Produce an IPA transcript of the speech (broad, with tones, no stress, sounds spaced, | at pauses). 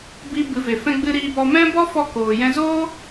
b i˧ b ɨ˨˦ v e˨ f ɛ̃˧ ɡ͡b ɨ˧ ɾ iː˧ b ɔ˧ m ɛ̃˦ b ɔ˦ f ɔ˧ k oː˧ j ɛ̃˧ z oː˦